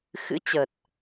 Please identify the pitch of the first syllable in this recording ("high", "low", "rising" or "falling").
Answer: rising